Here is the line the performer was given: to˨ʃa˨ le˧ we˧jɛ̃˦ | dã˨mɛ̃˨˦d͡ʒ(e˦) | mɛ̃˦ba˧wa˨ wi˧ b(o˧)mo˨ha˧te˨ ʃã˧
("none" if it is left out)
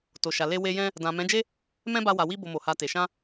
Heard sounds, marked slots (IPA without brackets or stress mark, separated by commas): e˦, o˧